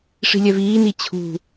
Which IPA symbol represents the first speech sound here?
ʂ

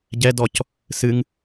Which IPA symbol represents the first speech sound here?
ɟ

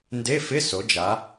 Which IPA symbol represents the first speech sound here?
n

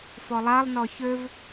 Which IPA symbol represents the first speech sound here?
f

